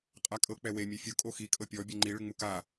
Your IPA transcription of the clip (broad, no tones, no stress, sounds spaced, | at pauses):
qʼ a kʼ ɤ k͡p ɛ w e mʲ e fʲ o kʼ o x i kʼ ɤ pʲ ɔ bʲ ɛ ŋ͡ǃ i ɭ ɯ ŋ͡m u k a